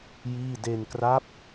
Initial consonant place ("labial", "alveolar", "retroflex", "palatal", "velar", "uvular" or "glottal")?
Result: palatal